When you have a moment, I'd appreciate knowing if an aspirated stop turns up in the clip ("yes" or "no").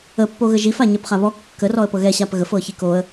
no